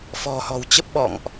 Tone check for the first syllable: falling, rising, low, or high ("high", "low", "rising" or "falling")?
low